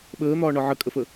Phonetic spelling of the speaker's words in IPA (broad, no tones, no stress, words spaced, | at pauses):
ɓəːn̪ɒːɳɒ ʕəkʼəfə